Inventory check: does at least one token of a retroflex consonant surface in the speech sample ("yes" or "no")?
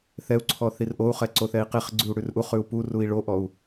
yes